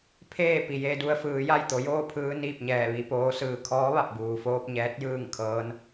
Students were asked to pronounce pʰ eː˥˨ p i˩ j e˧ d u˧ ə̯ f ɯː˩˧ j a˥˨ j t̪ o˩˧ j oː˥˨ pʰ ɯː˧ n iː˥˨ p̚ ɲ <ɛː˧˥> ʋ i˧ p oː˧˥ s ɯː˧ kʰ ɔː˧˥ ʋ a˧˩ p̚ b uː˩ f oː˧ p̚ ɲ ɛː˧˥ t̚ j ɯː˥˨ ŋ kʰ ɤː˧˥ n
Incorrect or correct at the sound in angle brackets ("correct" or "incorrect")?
incorrect